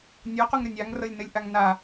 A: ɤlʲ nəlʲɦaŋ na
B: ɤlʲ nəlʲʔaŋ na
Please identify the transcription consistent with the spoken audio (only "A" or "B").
B